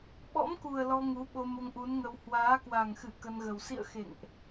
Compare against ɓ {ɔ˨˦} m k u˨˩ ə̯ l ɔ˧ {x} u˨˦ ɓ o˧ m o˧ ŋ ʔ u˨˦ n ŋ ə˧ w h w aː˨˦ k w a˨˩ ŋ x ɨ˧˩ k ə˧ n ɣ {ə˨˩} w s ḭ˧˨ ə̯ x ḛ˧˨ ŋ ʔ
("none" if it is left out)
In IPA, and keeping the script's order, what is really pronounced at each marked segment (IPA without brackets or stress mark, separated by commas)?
ɔ̰˧˥, ŋ, ə˨˩